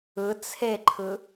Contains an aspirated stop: yes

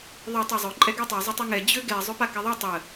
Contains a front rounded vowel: yes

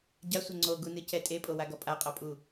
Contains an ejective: yes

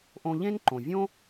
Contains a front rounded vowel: no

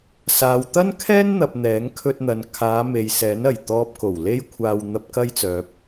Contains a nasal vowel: no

